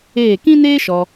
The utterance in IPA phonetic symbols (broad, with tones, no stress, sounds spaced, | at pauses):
eː˦˨ k ĩ˦ n eː˦ ʃ ɔ˧